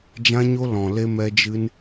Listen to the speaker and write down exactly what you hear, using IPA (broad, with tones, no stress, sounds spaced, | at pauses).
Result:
d͡ʒ ã˦ ɲ o˦ l ɔ̃˨ l e˧ m ɛ˧ d͡ʒ ɨ˧ n